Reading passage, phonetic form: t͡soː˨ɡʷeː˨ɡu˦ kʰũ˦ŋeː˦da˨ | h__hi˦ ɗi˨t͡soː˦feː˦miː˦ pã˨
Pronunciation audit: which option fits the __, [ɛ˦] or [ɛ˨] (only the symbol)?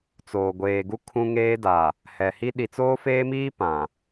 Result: ɛ˨